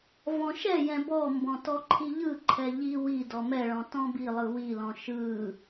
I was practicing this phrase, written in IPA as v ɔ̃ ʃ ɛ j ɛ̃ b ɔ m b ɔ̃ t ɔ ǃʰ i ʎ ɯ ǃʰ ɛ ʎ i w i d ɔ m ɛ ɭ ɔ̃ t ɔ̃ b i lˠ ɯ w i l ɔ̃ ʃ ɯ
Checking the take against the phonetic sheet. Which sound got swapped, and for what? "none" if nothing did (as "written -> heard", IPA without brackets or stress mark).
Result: none